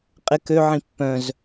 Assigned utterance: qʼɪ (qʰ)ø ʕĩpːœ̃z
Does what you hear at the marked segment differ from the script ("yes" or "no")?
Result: yes